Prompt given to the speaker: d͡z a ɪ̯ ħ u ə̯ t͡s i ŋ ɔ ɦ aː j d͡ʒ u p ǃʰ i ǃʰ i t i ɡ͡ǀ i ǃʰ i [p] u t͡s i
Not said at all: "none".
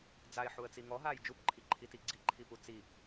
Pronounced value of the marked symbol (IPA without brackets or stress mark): p